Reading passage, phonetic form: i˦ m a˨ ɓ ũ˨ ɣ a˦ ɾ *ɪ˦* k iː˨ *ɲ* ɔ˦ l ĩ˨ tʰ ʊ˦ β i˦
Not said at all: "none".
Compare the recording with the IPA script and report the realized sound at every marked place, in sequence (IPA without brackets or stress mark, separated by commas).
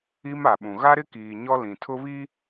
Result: ɪ˦, ɲ